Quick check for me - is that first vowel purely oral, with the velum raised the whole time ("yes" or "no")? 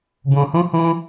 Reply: no